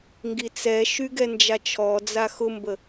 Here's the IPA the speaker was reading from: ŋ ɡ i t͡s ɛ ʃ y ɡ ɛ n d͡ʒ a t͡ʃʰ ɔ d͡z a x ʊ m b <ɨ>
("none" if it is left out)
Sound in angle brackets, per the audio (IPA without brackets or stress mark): ə